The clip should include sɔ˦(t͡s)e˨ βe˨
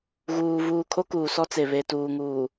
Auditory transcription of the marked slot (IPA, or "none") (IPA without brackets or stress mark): t͡s